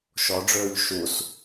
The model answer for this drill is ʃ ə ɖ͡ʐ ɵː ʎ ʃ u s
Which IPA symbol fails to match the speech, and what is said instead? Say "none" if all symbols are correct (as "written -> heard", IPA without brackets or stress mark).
ə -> ɔ